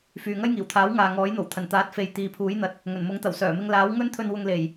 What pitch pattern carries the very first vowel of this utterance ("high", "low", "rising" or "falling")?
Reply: low